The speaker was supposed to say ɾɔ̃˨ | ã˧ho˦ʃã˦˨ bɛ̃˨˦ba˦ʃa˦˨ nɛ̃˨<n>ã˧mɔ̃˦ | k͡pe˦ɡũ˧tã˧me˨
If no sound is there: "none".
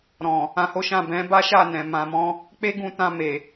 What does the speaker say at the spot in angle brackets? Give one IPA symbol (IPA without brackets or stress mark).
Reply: m